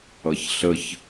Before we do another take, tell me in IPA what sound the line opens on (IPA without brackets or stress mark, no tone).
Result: ʌ